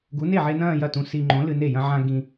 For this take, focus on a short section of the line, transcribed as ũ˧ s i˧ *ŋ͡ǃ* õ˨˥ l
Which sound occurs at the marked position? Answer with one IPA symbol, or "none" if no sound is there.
ŋ͡ǃ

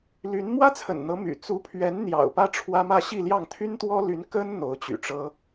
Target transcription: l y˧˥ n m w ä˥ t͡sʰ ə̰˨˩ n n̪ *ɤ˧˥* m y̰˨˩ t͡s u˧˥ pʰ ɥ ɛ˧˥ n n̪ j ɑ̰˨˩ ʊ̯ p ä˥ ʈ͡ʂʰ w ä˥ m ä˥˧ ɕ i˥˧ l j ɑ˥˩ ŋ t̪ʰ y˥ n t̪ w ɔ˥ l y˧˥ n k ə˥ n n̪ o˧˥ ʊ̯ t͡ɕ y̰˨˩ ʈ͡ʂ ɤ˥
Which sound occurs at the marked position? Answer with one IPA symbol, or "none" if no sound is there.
ɤ˧˥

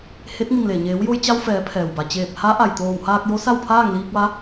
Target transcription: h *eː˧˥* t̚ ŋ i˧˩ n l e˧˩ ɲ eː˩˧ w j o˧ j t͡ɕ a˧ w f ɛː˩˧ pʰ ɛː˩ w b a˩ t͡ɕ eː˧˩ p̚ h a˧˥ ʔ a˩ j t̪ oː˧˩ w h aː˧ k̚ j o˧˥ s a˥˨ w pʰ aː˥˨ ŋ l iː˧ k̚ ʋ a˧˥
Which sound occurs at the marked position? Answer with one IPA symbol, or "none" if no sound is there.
e˧˥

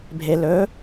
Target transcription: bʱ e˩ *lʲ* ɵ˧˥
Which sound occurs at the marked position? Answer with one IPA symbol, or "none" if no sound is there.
l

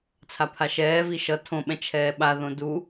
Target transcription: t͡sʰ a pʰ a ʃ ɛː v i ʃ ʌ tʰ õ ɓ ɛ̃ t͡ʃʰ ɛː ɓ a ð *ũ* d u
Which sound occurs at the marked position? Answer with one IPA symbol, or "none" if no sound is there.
õ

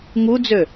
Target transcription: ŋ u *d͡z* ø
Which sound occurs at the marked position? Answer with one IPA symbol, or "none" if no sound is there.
d͡z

